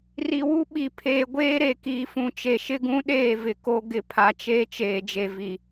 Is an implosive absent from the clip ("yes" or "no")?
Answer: no